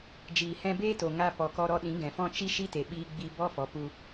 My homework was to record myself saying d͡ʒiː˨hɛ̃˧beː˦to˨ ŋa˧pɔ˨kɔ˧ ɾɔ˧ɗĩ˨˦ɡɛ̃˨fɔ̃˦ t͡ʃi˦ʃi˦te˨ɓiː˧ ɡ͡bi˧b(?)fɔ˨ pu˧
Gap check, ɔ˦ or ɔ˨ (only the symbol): ɔ˦